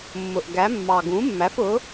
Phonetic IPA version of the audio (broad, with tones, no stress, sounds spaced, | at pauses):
mː ʊ˨˩ ʔ ɡ æ˩˥ mː ɑ˨˩ ɡ ũ˩˥ mː æ˩˥ f ʊ˩˥